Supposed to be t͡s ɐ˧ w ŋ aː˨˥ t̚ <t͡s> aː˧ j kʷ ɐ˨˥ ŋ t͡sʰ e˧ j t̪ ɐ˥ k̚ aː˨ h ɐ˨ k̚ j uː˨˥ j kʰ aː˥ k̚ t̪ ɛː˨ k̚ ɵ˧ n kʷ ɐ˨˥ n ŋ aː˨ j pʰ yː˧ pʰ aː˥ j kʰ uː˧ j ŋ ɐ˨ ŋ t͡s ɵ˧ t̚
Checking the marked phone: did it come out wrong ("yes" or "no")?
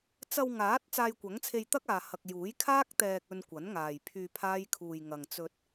no